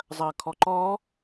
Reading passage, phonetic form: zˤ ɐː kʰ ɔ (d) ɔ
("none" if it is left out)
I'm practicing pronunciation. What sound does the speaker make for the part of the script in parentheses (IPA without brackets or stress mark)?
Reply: ǃ